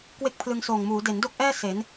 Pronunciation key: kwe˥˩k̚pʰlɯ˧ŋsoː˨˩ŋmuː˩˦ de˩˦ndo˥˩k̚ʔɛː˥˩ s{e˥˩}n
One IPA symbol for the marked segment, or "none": e˩˦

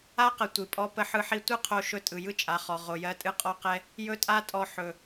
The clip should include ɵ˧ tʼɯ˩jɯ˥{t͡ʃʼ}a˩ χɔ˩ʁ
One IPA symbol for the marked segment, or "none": t͡ʃʼ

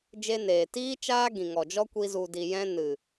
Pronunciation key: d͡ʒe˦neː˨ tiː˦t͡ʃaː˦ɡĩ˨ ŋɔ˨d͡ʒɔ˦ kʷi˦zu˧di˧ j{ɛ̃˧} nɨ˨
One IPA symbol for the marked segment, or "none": ɛ̃˦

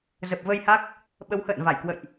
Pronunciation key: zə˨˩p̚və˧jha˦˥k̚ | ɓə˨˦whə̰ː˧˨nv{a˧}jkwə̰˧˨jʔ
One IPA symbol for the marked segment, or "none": a˧˩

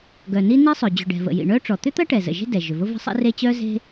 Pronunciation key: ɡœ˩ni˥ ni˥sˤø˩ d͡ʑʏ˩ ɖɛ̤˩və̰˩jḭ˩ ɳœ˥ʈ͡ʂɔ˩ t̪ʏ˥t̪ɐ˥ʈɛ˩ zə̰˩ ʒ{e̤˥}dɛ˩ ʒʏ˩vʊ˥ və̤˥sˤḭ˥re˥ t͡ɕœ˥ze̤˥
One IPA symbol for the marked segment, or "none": e̤˥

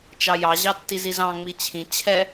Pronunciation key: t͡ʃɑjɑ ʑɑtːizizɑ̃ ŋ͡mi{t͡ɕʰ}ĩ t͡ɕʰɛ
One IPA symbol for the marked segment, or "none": t͡ɕʰ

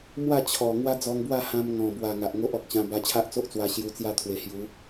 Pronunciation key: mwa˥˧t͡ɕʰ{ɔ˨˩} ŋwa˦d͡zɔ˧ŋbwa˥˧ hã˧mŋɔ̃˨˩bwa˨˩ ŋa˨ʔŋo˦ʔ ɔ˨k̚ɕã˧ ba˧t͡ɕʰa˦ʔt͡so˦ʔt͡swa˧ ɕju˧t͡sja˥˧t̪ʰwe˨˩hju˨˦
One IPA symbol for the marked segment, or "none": ɔ˨˩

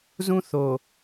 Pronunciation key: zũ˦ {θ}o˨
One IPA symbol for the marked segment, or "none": θ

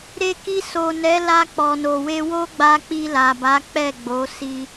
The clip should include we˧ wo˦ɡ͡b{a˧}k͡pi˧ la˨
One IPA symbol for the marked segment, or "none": a˧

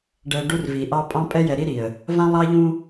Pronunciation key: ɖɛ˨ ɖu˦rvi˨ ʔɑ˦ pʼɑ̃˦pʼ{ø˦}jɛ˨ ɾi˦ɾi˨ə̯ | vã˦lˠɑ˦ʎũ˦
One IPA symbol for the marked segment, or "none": ɛ˦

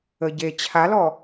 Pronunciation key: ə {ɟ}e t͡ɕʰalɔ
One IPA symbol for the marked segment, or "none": ɟ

